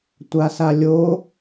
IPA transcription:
tʷasalʲo

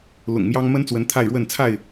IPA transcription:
lʊ̰˨˩ŋmjɑ˦ŋ mə˦nt͡swə˨˦n t̪ʰa˥˨ɪ̯ɻwə˥˨n t͡sʰa˥˨ɪ̯

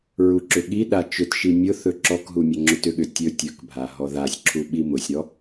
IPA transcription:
ɹuǁʏɠiɗa t͡ʃʏtʃi mʲʊ θɵǁɔkɦu mʲɵŋ͡ǁʊtʏɠʏ tʲɵ tʲɵkbʱa ɦɔðasʲǁʰu ɓimʊsʲɾɔ

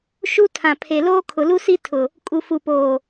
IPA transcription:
ʃu˦ tʰã˨pʰe˨loː˦ kʰʊ˨lu˦si˦ tʰʊ˨ | kʼu˨fu˨poː˨

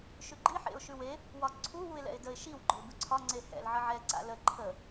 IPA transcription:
ʃʉɡ͡ǃi ħḛʊ̯ʃʉwe | wɒǀʰu wuɪ̯lɛ̰ɪ̯dəɪ̯ ʃiw ɡ͡ǃʊlbʉǀʰɒ ŋ͡ǀehɛ̰l ʕəʕɛ ǀa̰lə ǃʰə

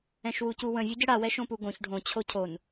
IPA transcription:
ɛ̃ʃwucuwə̃ vʲuɟəɽa wɛʃõpuɡõç ɖʱõ t͡ɕʰocʰon

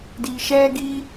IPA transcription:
di˧ʃɛ˦ɡi˦

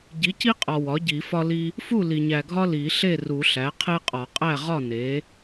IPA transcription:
ɟi˩˥ci˦qʼɒ˨ wɒ˩˥ɟi˨˩˦fɒ˦li˦ | fu˥˩li˨ɲæ˨ɡʱɒ˦ li˨˩˦ ɬe˥˩ru˨˩˦ɬæ˩˥ qʰe˦qʼɒ˨˩˦qʼæ˥˩ʁɒ˥˩ ne˩˥

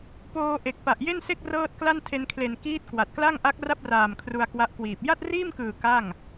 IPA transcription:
poː˧ ʔe˨˩k̚pa˨˩ʔje˥˩nse˥˩k̚ rɤː˥˩t̚kla˥˩ntʰe˧n kʰle˨˩nkiː˦˥t̚ kwa˨˩t̚kla˥˩ŋ ʔa˦˥k̚ra˥˩p̚raː˨˩m kʰru˧a̯kwa˦˥ʔkwiː˨˩p̚ ja˥˩t̚riː˥˩mkɯː˨˩ ka˥˩ŋ

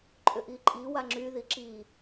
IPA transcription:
ǃʼʏʔiǃʼi waŋ͡ǁy ðiǁi

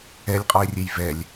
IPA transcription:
ɛlʲqʼɔe̯rʲej vɛlʲ

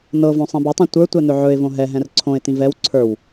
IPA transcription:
nɤvõ sˤĩbɵtˤĩ tʷə˞tʷɛ n̪ɵʕɵɪ̯võ ɦɛɦɛ̃r ǀʰõɪ̯tĩ vɛw ǀʰə˞w

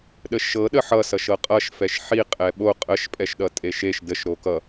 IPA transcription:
ɗəʃɤ ɗəħʌ sʌʃɤqʼʌʃ fɛʃħi qʼɛɓo qʼəʃ pʼɛʃɗʌtʼeʃeʃ dəʃ ɾokʌ

